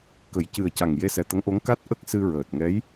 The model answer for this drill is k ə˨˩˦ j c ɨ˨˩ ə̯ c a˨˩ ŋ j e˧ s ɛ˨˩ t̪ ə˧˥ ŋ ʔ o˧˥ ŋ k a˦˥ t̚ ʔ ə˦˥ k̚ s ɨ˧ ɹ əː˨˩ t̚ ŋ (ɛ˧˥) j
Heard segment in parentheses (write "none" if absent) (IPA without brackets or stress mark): ɛ˧˥